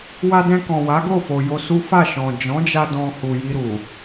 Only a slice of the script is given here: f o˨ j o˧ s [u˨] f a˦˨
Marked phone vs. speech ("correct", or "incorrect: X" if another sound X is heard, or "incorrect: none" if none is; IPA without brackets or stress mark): incorrect: u˦